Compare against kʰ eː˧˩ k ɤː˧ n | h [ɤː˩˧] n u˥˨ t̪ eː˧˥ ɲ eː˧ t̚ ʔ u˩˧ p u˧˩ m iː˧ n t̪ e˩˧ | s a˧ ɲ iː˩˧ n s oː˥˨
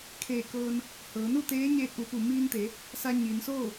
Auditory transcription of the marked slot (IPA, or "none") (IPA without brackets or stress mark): ɤː˩˧